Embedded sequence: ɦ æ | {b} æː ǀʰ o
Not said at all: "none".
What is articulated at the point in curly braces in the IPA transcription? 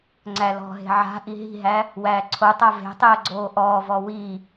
w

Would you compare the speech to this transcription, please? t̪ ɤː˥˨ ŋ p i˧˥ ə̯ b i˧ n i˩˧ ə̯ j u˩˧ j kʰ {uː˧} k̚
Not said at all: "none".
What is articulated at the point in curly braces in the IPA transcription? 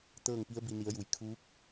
uː˧˥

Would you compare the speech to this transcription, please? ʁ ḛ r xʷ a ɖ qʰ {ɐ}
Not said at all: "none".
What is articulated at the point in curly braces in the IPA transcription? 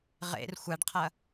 ɐ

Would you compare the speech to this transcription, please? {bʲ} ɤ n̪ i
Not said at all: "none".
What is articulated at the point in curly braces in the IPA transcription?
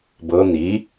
b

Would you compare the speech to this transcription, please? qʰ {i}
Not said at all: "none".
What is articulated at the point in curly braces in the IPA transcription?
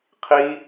i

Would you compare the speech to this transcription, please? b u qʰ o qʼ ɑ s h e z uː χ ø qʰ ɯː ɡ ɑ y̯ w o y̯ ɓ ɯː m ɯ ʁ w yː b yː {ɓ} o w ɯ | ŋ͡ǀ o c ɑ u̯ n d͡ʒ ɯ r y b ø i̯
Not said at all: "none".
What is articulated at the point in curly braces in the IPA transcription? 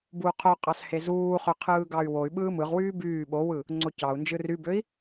ɓ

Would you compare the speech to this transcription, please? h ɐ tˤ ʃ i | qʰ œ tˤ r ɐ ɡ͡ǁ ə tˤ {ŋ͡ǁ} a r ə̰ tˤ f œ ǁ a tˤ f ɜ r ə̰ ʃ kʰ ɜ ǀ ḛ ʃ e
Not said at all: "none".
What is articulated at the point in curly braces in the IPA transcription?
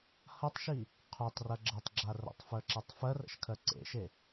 ɡ͡ǁ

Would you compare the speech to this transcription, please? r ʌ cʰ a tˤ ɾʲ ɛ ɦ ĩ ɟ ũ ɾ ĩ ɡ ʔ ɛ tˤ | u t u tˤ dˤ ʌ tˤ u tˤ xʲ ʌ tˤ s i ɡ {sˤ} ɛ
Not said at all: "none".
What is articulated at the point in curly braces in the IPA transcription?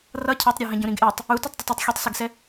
s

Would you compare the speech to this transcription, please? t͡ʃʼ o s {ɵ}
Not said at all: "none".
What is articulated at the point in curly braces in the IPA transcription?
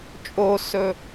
ɵ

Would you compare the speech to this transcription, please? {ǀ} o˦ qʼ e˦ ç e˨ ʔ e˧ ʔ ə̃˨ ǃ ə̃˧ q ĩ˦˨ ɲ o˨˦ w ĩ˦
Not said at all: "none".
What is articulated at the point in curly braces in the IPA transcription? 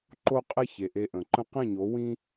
ǃ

